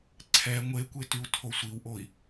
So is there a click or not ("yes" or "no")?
yes